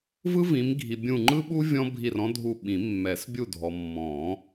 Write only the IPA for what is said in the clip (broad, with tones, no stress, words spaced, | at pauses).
vɯ˥vĩ˨˦mɡʱi˨ bʲũ˦˨ ŋ͡ǃɯ˥ɓu˥ vʲɔ̃˥bʱi˦˨rɔ̃˥dʱu˦˨ ɓĩ˨˩˦ mːɛ˨˩˦s bʲu˦˨dʱɔ˨ mːɔ̃˨˩˦